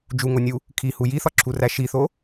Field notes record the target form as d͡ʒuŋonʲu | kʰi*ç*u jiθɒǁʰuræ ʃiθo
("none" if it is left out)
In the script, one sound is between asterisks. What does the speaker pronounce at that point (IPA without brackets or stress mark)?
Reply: h